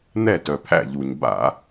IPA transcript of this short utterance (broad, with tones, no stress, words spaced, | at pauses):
n̪ɛ˥˩tœ˩pʰæ̰˥˩ʎu˩ɲ ba̰˧˩˧